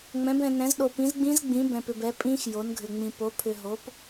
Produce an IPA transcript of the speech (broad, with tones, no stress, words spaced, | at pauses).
ŋ͡mɛ̃˨˥bɛ̃˧nɛ̃˨˥zɗo˧ pĩ˨˥zɡ͡bĩ˦˥zɡ͡bĩ˨˥ bɛ̃˧pʏ˧bɛ˨˥ pʼĩ˦˥x jo˨˥nɡʱʏ˧ŋ͡mĩ˧ po˨˥ pʰʏ˧ ɦo˨˥p